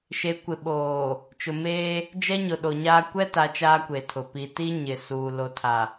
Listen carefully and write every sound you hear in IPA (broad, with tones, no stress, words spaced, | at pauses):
ʃe˨˦kʷɪ˨ɓoː˨ | t͡ʃʊ˨meː˦ | d͡ʒɛ˦ɲʊ˨ɗo˨ɲaː˦ kʷɛ˦ta˨˦ t͡ʃaː˦kʷe˨tʰʊ˨ pi˨ti˦ɲɪ˨ suː˨ lo˨tʰa˨